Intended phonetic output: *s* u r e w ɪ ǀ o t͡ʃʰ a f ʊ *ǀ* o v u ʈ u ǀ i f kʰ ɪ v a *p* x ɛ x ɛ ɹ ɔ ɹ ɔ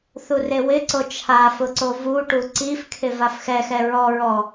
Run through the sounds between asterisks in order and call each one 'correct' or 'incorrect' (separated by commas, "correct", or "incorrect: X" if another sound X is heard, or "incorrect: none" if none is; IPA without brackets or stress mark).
incorrect: θ, correct, incorrect: f